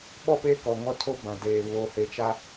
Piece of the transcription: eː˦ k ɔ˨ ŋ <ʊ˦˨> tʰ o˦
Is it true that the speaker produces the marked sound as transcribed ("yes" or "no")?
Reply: no